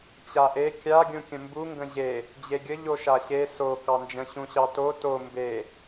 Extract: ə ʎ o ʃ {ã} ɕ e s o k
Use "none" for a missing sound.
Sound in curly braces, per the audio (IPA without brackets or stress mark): a